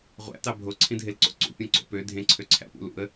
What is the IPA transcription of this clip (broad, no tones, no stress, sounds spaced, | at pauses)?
ʁʷ æ̰ t ɑ bʱ o ǀʰ ĩ dʱ e l ǀ o̰ ǀ ṵ pʲ õ ǀ o̰ p ø dʱ ẽ ǀʰ ø ǀʰ æ̰ p ṵ l ṵ ə̯